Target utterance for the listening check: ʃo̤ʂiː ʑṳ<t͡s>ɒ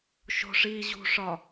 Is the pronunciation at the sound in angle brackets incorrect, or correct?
incorrect